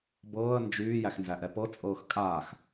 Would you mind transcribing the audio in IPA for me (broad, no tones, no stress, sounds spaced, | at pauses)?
b ɤː ə̯ n d͡ʒ yː j æ x n z æ ʔ ɛ p ɤ t͡sʼ ɤː x kʼ aː x